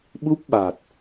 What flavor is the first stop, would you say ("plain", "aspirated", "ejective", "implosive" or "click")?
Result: implosive